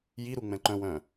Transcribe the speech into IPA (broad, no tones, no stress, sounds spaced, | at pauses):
j i ɾ u ŋ͡m ɛ̃ ǃ œ̃ w œ̃